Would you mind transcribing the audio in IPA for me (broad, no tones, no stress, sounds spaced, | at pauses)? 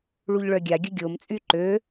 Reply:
ɭ u ʎ ɭ œ ɡʲ a ɡʲ ə ɡʲ o m t͡sʼ y ǃ ø